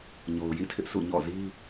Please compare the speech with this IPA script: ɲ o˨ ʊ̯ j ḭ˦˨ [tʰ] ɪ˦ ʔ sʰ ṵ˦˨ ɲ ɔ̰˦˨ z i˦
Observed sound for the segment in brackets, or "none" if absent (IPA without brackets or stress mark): tʰ